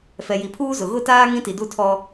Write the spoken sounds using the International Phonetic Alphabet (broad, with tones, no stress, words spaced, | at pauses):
fɛ˨ji˨pʰuː˦ zʊ˨ ɣʊ˦˨taː˦ ŋĩ˦ti˨du˦˨tʰɔ˦